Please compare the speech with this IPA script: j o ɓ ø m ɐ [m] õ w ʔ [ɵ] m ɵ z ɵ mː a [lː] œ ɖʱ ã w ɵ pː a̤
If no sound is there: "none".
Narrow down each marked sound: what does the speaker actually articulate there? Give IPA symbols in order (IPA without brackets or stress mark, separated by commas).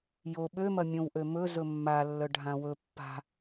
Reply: mʲ, ø, lː